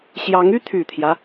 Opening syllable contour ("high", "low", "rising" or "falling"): rising